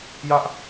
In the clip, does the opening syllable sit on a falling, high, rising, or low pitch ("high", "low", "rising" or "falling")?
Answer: high